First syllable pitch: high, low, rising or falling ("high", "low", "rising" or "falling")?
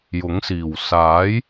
rising